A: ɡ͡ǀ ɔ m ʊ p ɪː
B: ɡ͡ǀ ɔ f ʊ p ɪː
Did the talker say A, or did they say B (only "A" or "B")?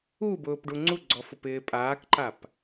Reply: B